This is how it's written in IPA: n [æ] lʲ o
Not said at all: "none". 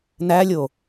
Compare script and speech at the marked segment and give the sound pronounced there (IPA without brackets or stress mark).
æ